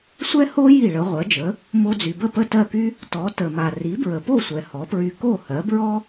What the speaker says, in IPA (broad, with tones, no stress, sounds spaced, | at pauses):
sʷ ɛ˥ h o˥ j i˥˩ ɭ ə˩˥ ʁʷ ɜ˩˥ d͡ʒ ə˩˥ | m o˧ d͡z y˩ b ə˥˩ p ə˥˩ t ɜ˥˩ k y˥ | t ɔ˩˥ t ə˩ m a˩ r i˩˥ b ɹ ə˩ p o˥˩ sʷ ɛ˩ h ɔ˩˥ p ɹ y˧ k o˥˩ h ɜ˩˥ b ɹ ɔ˥